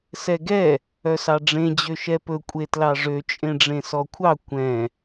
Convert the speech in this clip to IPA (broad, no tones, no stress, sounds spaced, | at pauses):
s ɛ ɡ ɛ | œ s ɑ ɖ͡ʐ ẽ d͡ʑ ø ʃ ɛ p ɵ kʷʼ e t l ɑ ʐ ø t͡ʃʼ ẽ ɖ͡ʐ ẽ s ɔ kʷʰ ɑ kʷ ɛ̃